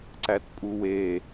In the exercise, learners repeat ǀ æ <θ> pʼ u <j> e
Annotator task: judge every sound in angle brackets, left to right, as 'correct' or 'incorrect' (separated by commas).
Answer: incorrect, incorrect